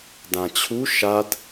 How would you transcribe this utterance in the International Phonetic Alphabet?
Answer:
d ã t͡ɕʰ u ʃ a d

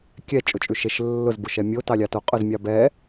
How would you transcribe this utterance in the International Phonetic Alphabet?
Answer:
kʲ ɛ t͡ʃʼ ʊ t͡ʃʼ ʉ ʃ e ʃ lː ʊ z b ʊ ʃ ɛ mʲ o t ɑ lʲ ɑ t o qʼ ʊ z mʲ ɑ b ɛ

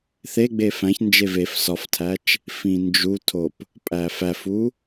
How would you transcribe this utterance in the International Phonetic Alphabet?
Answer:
θ e ɡ͡b e f æ̃ ç n d͡ʒ e v e f s ɒ f tʰ æ t͡ʃ | f ĩ n d͡ʒ u tʰ o p | pʼ æ f æ f u

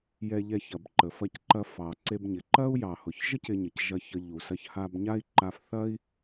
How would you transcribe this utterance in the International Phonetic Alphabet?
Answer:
j ɛ˧ ʎ ɛ˧ ç ɐ˩ b ǃ ə˩ f ɐ˧ c ǃ ɐ˧ f ɑ˩ ǀ e˧ b ɲ ɪ˩ ǃ ɐ˥ u̯ j ɑ˩ h ʊ˩ ç ʒ ə˥ c ɪ˧ ɲ ə˩ c ʒ ɐ˧ ç ə˧ ʎ u˩ s ɐ˧ ç h a˧ b ɲ a˥ i̯ ǃ a˧ f θ ɐ˥ i̯

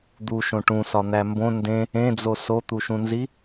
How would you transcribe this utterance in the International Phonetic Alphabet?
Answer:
d̪ u ʃ õ ʈ ũ s ɒ n̪ æ m b õ n d ẽ | ẽ d͡z o s o t̪ u ʃ ũ n z i

